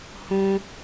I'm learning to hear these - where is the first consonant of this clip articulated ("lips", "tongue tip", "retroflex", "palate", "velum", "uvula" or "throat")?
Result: throat